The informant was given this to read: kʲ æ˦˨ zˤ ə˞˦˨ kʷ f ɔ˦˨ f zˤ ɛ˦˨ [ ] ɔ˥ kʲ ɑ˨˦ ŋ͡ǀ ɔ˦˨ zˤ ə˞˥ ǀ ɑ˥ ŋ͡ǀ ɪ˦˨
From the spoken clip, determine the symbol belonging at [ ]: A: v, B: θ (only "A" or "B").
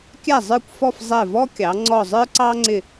A